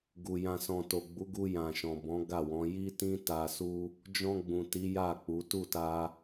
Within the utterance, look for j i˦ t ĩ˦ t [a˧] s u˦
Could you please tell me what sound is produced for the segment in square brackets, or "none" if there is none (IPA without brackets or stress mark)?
a˧